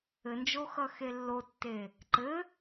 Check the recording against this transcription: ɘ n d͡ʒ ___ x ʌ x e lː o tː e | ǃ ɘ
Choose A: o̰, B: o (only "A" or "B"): B